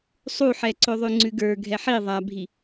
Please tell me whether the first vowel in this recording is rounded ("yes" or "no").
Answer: yes